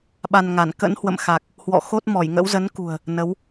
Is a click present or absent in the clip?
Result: absent